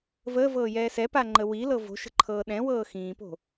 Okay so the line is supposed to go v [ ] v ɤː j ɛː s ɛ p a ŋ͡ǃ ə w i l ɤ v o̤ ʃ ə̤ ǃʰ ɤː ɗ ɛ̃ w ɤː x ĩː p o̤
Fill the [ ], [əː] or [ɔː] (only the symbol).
əː